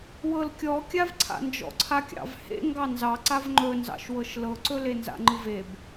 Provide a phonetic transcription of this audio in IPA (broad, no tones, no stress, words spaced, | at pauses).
wɤlkʲɔkʲav ǀʰa̰nd͡ʒɔ̰ǀʰakʲɑ̰v hḛ ŋɡɑnzɑ ǀavŋ͡ǃɵnzɑ̰ʃwɤʃ lɤǀɵlenza̰ ŋ͡ǃɯveb